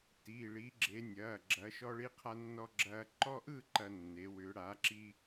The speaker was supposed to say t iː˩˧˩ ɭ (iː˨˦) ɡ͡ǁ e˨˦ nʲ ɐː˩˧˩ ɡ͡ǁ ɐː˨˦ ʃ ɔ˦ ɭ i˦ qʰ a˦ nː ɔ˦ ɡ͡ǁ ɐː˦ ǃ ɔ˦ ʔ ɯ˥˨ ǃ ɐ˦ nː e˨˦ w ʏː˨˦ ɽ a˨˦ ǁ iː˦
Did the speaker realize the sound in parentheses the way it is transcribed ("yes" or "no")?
yes